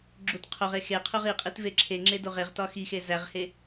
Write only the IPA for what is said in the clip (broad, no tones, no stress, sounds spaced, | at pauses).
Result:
ɡ͡ǁ u t qʰ o ʁ e x e qʰ u ʁ i qʼ i t v e ǁʰ e ŋ͡ǁ e d o ʁ e ʁ t ɒ x i x e z æ ʁ h e